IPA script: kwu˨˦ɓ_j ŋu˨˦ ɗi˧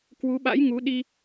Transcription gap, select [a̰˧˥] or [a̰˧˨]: a̰˧˥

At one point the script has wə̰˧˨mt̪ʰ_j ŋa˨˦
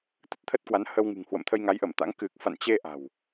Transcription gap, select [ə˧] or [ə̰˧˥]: ə˧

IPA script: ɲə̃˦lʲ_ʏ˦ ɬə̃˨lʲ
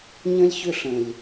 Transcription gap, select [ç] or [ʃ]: ç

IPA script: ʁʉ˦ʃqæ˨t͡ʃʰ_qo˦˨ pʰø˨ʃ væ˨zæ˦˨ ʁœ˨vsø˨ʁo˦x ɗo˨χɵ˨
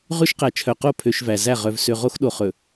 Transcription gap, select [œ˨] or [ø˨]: œ˨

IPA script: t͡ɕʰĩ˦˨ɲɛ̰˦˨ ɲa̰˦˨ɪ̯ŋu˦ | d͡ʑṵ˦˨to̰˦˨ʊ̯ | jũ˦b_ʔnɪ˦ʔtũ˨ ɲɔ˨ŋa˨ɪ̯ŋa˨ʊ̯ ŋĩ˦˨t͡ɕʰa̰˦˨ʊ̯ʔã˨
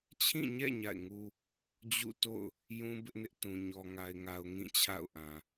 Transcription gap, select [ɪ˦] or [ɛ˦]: ɪ˦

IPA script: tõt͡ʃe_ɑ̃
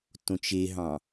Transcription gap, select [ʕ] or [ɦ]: ɦ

